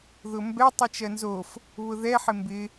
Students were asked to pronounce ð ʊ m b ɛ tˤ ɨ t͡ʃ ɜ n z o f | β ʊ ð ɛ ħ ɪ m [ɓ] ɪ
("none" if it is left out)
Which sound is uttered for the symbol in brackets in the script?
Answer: b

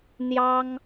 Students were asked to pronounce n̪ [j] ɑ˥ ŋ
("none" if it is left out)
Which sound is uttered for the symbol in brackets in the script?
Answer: j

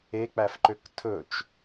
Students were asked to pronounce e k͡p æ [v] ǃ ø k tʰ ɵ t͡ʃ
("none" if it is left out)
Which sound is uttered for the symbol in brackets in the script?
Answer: f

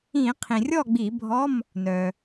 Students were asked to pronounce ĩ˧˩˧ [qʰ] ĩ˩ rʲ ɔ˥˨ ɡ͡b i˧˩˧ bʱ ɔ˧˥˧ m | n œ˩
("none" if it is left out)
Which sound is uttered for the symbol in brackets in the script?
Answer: qʰ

